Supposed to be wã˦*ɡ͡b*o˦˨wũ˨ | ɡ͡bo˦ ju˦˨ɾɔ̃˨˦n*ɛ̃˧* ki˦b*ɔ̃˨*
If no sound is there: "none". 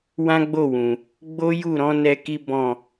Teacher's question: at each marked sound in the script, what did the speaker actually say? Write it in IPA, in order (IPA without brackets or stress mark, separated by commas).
ɡ͡b, ɛ˧, ɔ̃˦˨